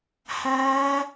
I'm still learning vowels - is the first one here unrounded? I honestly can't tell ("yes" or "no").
yes